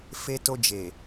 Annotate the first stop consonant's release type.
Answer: plain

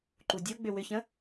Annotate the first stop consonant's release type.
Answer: click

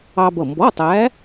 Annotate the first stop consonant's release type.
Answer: plain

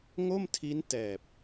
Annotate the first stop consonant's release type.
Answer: aspirated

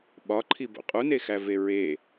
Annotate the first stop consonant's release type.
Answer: implosive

